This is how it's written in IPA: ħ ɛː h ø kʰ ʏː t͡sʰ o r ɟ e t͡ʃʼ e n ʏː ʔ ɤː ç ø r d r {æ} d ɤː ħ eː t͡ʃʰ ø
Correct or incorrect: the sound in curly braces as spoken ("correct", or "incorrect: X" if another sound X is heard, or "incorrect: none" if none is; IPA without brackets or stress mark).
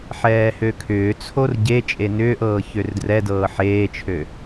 incorrect: ɛ